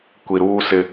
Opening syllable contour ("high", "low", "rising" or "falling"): low